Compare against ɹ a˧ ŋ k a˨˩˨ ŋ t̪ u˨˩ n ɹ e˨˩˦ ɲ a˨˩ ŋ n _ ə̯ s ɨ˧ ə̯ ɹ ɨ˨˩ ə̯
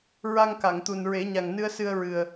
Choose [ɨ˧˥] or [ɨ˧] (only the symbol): ɨ˧